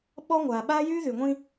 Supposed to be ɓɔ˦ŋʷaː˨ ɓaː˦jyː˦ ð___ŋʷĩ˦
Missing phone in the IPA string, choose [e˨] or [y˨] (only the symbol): y˨